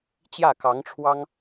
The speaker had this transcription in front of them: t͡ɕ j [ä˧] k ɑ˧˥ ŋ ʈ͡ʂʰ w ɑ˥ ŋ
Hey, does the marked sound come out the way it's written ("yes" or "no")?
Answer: no